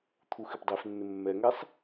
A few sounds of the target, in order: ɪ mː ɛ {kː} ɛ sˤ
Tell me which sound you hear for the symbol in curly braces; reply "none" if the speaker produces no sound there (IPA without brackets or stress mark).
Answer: ŋ